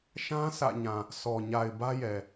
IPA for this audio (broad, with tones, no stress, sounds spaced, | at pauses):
ʃ ã˦ sʰ ä̰˦˨ ɲ ã˨ | sʰ ɔ˨ ɲ a˨ ɪ̯ b ä˦ j ɛ˨